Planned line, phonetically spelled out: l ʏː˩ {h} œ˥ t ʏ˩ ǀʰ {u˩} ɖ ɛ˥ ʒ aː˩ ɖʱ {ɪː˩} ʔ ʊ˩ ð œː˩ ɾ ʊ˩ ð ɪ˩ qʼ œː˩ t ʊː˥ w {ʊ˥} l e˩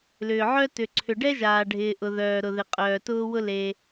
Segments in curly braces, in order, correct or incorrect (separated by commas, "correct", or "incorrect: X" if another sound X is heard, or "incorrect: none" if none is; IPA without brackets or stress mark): incorrect: ʕ, incorrect: ʏ˩, correct, correct